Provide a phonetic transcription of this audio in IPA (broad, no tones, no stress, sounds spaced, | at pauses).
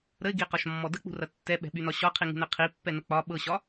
ɾ ə ɪ̯ ɡ i q ɒ ʃ mː ɔ d ə k͡p ṳ r ɐ tː ɛ ɓ ɛ̤ ɓ y n ɒ ɕ ɒ qʰ i ŋ ṳ n ɛ qʰ i pː ɛ n ə k͡p ɒ ɓ ɤ ɕ ɒ